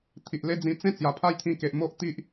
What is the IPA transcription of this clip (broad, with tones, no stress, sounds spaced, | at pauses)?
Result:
t̪ʰ i˨ ʔ l e˦ d͡z ĩ˧ t͡s ẽ˥˧ t͡s j a˨˩ pʰ a˥˧ j t̪ʰ ĩ˧ k e˨ ʔ m o˦ ʔ t̪ i˦ ʔ